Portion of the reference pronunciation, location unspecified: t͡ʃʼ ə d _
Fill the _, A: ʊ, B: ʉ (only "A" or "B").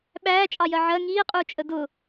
A